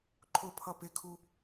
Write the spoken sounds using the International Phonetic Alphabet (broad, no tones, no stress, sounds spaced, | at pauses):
ǃʰ ʊ pʰ ʌ p ɪ kʰ u